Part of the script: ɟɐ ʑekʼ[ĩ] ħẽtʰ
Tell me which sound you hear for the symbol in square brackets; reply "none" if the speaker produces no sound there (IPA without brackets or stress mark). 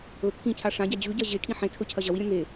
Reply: ĩ